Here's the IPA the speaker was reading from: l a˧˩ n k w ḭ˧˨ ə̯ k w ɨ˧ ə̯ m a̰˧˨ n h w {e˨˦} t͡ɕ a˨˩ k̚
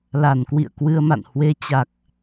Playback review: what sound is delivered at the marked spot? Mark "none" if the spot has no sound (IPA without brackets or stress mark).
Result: e˨˦